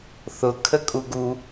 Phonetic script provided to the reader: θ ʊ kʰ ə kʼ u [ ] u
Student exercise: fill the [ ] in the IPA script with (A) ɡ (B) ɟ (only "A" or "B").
A